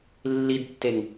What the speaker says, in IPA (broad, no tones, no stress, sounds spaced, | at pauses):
lː i d tː e ŋ